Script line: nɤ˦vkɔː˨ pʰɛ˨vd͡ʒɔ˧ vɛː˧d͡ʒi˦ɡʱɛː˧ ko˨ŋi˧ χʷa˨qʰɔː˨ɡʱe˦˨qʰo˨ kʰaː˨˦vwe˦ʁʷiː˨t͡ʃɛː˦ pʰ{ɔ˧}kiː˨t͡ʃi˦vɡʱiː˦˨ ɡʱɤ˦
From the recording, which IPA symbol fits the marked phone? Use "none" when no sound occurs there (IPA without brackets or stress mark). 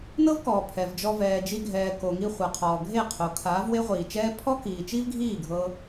ɔ˦